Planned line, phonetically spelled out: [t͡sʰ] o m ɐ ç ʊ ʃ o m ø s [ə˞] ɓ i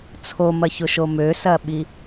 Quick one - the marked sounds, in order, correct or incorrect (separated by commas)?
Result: correct, incorrect